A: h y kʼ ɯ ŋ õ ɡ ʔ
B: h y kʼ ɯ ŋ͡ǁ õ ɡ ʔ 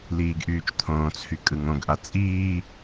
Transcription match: A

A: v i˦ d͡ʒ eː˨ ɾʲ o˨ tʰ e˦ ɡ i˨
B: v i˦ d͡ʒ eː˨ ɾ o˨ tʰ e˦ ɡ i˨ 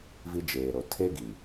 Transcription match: B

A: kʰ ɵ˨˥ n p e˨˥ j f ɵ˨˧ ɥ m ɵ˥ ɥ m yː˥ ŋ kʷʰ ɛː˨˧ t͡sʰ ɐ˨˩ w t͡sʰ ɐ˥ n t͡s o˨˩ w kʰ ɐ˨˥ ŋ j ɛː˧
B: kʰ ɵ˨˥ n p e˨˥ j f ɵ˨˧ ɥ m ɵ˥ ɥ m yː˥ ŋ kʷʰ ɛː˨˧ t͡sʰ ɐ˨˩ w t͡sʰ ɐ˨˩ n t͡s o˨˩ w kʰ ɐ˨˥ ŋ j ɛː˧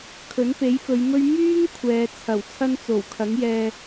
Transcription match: A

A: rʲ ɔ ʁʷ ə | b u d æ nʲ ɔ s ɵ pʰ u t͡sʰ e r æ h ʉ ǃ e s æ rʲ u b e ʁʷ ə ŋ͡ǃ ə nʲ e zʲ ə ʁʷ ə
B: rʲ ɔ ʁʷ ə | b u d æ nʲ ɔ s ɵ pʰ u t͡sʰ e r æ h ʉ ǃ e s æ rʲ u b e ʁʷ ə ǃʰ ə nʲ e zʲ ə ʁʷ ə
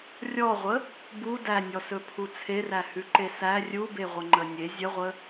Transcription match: A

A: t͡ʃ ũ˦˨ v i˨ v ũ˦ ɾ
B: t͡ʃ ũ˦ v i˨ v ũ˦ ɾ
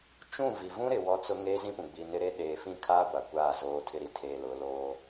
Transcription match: A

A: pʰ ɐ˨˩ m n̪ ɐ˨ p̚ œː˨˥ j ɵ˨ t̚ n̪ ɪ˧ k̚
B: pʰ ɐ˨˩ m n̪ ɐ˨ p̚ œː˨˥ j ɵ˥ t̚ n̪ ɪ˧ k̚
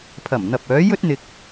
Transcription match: B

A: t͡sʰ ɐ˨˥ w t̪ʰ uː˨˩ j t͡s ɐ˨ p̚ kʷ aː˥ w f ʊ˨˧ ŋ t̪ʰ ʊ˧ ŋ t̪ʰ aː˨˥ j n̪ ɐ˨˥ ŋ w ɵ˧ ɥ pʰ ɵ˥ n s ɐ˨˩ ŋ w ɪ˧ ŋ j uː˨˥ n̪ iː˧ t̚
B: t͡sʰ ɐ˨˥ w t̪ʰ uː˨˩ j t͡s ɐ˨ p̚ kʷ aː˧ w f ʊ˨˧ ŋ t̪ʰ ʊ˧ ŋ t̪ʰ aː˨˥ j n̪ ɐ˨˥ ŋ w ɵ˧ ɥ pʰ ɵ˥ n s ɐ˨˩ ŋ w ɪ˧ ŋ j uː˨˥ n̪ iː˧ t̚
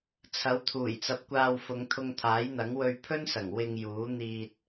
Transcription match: B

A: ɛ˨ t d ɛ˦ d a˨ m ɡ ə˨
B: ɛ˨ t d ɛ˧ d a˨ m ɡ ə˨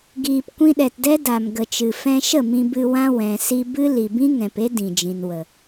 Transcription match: A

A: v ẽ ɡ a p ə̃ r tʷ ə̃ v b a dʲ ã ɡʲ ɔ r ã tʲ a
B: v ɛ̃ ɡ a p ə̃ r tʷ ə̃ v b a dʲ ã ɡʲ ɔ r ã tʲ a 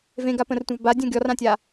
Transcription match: A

